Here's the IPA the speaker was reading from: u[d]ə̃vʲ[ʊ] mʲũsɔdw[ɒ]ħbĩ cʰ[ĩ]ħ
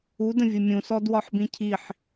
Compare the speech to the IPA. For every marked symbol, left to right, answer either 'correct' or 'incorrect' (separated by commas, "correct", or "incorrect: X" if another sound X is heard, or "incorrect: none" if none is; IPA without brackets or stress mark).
correct, correct, correct, incorrect: i